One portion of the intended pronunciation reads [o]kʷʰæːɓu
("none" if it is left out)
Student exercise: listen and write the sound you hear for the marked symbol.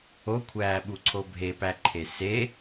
o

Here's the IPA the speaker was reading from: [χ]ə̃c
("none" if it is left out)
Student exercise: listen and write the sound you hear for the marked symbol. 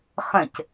χ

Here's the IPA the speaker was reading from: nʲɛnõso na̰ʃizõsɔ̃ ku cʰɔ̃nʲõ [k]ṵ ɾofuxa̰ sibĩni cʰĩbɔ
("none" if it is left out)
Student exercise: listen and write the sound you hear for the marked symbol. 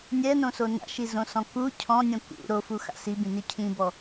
k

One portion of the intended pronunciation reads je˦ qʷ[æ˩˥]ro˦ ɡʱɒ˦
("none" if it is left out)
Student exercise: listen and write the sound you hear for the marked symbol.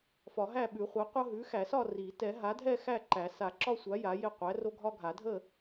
æ˩˥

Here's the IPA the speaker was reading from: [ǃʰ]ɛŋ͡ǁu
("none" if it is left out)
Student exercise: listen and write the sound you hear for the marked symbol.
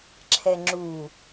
ǁʰ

